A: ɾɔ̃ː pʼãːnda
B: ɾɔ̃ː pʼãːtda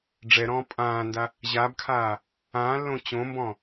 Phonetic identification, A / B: A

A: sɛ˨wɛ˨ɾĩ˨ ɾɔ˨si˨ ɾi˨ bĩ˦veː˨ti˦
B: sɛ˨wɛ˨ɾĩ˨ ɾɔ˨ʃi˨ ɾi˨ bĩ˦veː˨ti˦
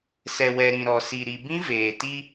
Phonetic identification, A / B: A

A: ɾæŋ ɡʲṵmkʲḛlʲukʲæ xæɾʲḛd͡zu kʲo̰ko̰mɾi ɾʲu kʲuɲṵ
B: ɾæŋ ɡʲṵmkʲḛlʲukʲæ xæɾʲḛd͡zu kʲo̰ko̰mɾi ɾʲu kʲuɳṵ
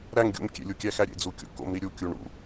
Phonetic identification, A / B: B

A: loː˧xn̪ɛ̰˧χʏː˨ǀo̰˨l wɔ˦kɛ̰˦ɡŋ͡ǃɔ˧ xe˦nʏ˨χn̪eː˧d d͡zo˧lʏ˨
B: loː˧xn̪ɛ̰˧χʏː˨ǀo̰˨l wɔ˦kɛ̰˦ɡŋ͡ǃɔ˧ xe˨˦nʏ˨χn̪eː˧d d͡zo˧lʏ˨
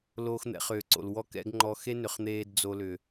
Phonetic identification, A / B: A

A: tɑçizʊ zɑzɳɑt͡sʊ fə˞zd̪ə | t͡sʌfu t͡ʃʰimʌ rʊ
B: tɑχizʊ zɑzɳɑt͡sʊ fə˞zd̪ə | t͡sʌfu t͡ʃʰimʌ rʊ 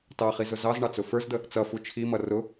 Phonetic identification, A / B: B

